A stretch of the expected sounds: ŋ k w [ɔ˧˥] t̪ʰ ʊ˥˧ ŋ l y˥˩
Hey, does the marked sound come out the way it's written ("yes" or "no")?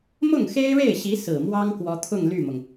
yes